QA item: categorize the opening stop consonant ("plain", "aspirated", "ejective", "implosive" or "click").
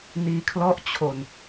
aspirated